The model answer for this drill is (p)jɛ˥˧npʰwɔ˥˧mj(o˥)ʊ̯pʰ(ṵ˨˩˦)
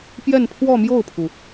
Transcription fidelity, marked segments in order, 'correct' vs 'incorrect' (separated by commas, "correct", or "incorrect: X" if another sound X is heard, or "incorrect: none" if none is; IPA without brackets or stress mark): correct, incorrect: o˥˩, incorrect: u˩